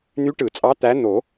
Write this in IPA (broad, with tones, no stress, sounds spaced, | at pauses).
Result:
n̪ y˧˥ ʈ ɯ˨˩˦ t͡sʼ ɑ˧˥ t̪ æ˧˥ n̪ o˨˩˦